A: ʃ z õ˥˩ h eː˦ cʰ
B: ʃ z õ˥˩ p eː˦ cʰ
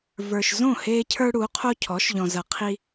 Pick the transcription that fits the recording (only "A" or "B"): A